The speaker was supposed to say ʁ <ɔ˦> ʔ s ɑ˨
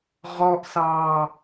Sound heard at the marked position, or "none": ɔ˨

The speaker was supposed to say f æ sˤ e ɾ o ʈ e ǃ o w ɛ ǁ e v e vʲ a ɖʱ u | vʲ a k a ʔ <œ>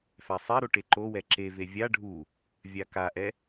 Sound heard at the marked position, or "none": ɛ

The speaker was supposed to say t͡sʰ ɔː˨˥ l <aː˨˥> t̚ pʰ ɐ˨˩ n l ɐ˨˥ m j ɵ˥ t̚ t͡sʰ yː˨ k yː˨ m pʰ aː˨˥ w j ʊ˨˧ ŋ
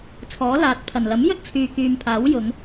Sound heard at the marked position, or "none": aː˨˥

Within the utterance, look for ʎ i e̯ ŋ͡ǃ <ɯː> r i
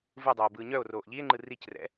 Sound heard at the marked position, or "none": ɯ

